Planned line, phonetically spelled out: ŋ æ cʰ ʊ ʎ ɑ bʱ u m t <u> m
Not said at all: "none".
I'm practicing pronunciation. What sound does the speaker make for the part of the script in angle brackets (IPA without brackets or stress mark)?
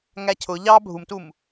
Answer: u